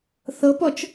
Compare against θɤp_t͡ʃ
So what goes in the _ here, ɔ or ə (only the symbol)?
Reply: ɔ